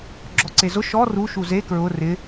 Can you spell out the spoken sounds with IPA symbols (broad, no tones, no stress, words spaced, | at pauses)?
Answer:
ɡ͡ǁɔǀezʊ ʃɔ ru ʃuze kɹʊ rɪ